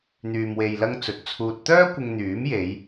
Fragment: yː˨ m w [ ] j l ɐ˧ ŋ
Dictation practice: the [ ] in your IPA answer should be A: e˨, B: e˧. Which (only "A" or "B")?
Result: A